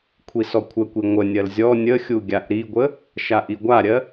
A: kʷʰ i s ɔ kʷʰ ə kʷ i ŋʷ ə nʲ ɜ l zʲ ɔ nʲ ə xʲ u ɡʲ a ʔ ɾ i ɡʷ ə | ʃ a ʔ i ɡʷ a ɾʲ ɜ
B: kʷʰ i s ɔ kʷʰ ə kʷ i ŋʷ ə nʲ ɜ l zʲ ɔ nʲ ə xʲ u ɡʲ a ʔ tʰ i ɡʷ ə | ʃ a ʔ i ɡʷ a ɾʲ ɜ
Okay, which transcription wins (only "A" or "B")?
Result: A